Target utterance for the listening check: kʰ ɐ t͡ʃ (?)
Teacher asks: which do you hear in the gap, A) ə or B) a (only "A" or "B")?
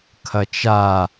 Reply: B